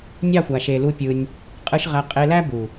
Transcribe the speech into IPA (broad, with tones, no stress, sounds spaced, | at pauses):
nʲ ɑ˦˨ xʷ a˨ ʃ e˨ l u˧ pʲ ɯ˧ nʲ | qʼ ɯ˧ ʃ ʁ æ˧ qʼ e˧ l æ˦ b u˨